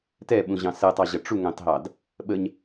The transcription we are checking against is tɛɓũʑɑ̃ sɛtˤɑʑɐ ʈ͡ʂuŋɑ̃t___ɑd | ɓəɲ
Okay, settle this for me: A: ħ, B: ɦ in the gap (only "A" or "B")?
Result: B